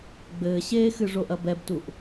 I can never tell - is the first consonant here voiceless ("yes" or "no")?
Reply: no